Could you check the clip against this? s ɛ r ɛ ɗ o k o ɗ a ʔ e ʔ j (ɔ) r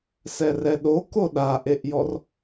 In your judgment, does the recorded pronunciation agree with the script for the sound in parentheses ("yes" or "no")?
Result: yes